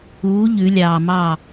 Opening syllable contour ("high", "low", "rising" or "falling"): rising